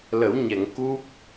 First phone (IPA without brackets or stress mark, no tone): l